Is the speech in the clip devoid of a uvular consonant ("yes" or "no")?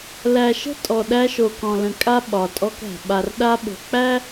yes